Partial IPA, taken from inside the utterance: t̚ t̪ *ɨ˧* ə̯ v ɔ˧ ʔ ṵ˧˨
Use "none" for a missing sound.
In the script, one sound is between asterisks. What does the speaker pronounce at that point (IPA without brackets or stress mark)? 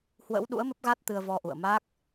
ɨ˧